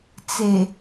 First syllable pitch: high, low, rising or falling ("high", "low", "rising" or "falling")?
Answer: low